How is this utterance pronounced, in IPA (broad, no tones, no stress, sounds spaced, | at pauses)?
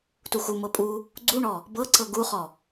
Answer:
t u x u m ɤ pʼ u | ɡ͡ǀ u ɳ ɔ | b ɤ ǀ ɤ ɡ u χ ɔ